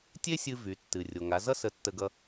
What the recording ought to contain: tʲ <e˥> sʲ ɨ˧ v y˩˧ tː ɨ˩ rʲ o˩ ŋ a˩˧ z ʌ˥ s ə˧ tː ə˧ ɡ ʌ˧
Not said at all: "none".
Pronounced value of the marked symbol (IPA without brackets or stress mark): e˥